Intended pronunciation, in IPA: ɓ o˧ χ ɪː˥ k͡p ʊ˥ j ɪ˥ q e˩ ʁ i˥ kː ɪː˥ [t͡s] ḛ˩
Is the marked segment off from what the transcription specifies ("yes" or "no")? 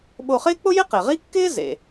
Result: yes